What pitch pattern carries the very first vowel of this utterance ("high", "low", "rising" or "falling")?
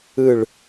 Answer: falling